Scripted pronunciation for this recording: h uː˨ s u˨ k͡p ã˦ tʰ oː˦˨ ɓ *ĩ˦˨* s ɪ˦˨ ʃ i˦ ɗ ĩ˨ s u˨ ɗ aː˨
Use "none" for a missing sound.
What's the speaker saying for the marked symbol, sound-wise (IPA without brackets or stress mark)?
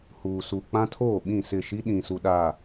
ĩ˦˨